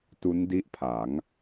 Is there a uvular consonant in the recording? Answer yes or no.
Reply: no